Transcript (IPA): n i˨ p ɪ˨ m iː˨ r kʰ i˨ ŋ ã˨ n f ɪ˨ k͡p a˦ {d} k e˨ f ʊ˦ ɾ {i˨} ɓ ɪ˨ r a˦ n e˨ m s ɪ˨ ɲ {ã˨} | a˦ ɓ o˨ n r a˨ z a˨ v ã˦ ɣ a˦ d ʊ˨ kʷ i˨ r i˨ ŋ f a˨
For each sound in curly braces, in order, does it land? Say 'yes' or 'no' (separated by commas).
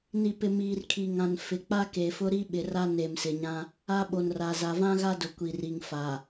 no, no, no